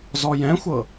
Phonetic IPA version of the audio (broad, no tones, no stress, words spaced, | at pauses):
zɔjɛ̃xʷɤ